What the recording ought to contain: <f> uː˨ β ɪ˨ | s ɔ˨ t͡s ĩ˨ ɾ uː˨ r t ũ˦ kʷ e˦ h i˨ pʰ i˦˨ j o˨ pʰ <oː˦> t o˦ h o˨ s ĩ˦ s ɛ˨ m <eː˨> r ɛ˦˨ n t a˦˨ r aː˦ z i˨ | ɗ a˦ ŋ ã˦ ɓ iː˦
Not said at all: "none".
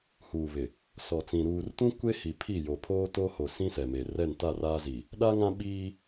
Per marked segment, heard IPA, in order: h, oː˦, e˨

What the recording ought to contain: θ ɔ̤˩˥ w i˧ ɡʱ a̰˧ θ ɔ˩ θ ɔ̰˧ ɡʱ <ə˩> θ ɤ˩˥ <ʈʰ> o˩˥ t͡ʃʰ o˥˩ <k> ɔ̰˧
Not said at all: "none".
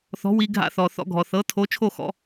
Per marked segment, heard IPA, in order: ɔ˩, tʰ, x

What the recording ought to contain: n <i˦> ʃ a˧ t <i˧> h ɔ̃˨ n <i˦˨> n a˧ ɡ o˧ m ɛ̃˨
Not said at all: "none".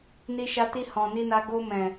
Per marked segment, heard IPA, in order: i˧, i˧, i˧

